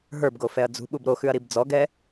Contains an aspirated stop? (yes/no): no